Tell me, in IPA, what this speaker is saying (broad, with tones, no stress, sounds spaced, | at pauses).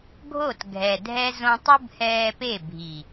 ɡʱ o˦˨ t ɡʱ ɛ˨ dʱ ɛ˦ z õ˧ tˤ ɯ˦ b h ɛː˧ p e˦˨ bʱ i˨